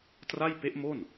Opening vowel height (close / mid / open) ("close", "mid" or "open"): open